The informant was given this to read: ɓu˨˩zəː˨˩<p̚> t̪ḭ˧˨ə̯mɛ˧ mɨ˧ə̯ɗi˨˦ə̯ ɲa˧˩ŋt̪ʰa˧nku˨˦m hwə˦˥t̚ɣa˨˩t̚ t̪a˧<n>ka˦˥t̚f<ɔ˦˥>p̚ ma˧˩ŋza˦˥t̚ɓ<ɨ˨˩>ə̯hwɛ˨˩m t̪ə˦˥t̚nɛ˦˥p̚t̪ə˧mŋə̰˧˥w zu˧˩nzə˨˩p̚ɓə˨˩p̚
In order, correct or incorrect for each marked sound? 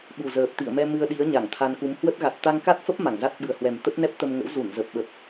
correct, incorrect: ŋ, incorrect: ə˦˥, correct

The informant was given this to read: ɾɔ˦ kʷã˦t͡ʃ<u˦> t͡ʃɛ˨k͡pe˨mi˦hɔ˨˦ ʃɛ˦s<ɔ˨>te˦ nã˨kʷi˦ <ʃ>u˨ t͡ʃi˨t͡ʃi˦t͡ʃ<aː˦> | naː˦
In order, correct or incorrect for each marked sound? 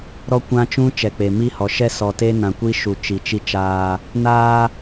incorrect: ũ˦, correct, correct, correct

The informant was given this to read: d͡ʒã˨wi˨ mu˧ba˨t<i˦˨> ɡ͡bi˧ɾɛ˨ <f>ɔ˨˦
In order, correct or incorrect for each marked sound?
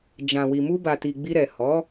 incorrect: i˨, incorrect: h

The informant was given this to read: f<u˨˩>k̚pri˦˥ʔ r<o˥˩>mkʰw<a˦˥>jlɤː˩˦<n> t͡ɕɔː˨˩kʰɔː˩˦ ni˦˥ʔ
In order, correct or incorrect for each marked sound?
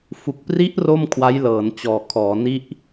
correct, correct, correct, correct

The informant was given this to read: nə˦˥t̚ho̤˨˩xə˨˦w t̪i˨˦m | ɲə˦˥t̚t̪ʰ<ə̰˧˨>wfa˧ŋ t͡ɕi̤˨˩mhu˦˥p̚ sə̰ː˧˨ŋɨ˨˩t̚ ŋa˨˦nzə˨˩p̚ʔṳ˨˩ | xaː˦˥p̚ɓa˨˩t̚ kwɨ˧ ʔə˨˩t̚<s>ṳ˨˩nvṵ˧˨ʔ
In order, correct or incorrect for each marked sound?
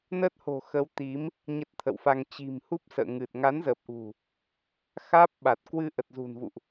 correct, incorrect: z

